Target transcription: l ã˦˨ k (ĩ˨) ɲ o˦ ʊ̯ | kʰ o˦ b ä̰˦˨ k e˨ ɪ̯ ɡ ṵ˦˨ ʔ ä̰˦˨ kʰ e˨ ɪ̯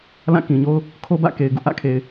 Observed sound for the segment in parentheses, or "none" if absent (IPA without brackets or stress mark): ĩ˨